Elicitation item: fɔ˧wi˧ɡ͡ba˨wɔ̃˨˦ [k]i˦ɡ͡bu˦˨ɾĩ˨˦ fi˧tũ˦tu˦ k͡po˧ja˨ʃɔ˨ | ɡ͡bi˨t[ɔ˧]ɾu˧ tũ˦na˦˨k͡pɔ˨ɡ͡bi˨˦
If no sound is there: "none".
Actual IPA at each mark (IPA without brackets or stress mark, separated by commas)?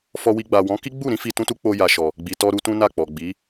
k, ɔ˧